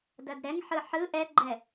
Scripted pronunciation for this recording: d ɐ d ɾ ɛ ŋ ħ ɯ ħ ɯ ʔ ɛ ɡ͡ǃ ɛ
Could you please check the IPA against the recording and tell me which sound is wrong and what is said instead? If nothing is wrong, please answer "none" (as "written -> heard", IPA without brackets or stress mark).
none